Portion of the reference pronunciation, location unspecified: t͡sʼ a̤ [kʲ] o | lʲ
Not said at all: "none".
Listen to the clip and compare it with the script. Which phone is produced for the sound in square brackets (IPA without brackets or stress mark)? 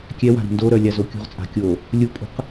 kʲ